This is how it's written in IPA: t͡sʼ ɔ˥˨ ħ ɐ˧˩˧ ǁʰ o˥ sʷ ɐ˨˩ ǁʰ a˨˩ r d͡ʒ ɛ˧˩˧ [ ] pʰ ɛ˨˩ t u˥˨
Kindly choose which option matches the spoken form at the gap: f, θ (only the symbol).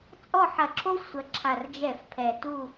f